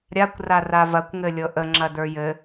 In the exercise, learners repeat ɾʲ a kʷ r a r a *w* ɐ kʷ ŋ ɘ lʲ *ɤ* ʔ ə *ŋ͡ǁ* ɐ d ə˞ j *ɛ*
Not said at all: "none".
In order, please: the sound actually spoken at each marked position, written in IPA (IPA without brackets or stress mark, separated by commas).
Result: v, ɤ, ŋ͡ǁ, ɘ